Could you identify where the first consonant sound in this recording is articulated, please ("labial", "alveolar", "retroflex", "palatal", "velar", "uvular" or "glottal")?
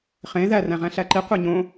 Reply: uvular